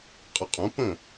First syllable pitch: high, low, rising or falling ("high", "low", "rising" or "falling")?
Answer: low